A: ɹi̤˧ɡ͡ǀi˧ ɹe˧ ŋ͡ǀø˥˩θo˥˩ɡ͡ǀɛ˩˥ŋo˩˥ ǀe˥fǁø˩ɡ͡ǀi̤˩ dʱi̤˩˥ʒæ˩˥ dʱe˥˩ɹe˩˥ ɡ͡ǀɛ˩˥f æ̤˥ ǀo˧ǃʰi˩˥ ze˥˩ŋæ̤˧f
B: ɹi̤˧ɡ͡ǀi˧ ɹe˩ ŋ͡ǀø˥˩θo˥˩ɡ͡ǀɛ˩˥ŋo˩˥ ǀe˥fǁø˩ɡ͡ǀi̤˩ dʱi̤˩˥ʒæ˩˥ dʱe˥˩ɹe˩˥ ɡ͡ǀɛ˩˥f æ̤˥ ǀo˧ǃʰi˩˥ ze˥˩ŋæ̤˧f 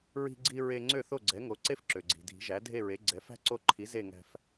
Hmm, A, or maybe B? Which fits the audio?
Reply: A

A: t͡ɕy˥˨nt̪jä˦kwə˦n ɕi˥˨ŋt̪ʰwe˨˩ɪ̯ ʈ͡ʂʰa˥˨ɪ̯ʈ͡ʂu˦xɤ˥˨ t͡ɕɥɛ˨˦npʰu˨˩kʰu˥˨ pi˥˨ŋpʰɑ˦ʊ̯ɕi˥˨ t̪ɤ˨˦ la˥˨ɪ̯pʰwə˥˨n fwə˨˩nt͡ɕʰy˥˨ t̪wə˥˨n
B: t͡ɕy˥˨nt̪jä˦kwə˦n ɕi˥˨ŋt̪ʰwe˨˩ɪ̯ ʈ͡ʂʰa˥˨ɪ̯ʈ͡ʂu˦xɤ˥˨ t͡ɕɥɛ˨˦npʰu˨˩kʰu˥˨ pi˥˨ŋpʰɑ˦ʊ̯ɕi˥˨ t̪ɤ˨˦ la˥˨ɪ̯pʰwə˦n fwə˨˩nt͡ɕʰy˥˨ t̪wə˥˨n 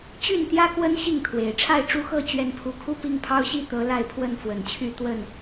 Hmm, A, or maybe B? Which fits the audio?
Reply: A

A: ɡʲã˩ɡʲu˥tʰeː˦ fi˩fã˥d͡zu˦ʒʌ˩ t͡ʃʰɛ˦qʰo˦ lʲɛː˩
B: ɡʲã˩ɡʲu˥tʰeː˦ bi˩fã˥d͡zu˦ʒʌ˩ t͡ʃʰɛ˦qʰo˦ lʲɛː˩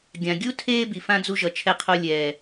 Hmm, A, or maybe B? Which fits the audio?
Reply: B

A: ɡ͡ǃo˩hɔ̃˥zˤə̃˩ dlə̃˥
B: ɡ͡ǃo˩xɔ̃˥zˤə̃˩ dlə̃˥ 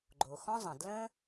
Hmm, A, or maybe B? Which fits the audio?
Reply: B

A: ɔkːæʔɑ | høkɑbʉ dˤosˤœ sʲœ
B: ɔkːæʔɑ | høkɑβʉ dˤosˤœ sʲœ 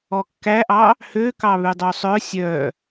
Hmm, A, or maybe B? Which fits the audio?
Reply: B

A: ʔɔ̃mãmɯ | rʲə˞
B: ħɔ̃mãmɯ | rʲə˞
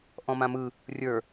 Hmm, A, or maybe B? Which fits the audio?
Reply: A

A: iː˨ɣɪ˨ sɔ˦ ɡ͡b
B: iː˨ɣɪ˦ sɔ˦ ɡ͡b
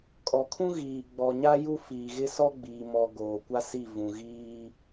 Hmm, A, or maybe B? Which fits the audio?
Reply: B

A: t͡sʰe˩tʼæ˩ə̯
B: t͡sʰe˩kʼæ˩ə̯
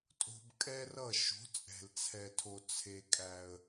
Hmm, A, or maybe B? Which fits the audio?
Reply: B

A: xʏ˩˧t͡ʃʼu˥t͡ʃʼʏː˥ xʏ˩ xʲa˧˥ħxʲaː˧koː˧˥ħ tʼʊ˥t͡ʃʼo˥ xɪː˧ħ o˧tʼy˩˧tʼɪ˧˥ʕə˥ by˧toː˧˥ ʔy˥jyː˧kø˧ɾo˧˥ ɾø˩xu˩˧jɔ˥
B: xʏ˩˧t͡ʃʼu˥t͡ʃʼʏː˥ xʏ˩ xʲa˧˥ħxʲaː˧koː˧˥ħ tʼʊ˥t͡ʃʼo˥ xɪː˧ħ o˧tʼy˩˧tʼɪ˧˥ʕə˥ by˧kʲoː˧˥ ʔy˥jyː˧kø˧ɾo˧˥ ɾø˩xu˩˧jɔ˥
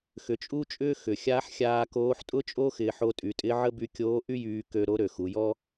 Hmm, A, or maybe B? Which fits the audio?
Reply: B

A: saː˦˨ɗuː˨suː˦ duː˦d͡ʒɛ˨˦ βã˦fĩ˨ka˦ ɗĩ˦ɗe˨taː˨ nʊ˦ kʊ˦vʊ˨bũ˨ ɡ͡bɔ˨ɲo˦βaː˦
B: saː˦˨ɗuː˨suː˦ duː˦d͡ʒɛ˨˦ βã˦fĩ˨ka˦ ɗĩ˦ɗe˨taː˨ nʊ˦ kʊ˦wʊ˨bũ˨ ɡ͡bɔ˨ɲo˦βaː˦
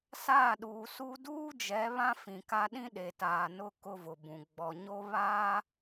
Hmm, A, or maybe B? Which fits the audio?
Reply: A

